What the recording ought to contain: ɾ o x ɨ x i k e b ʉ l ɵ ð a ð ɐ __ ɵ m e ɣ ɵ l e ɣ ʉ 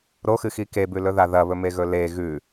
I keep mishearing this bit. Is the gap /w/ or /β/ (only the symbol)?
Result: β